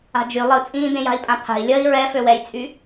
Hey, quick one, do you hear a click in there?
no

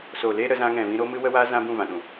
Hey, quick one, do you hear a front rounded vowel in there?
no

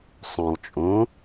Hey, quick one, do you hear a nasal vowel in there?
yes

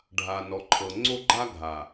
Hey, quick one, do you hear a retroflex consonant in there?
yes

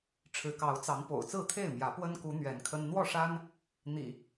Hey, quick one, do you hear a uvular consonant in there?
no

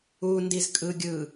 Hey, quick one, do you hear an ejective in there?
yes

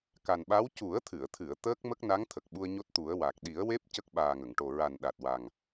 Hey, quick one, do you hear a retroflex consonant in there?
yes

